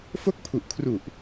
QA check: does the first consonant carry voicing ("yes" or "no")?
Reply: no